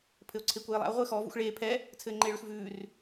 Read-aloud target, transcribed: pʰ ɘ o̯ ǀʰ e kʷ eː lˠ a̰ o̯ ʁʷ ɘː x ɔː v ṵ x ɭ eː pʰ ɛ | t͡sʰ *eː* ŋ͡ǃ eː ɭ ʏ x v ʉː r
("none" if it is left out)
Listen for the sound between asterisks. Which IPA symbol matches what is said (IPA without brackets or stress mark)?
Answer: ɘː